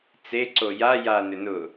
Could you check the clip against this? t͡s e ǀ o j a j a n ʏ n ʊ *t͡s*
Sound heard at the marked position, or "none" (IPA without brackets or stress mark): none